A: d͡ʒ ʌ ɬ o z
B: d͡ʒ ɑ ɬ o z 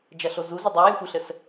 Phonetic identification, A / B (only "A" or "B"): A